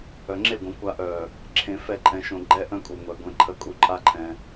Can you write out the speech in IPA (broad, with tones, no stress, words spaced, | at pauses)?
œ˨ŋ͡ǁe˦˨ɡʷə̃˨kʷa˧ ʔœ˨ | ǁʰẽ˧fɛ˦˨ǃʼɛ̃˧ʃõ˧ ɡ͡ǃɛ˦ʔœ̃˦kʼu˨ŋʷɛ˨ ɡʷẽ˨ ǃʰə˧kʼu˧ ǃʼa˦ǃʰɛ̃˧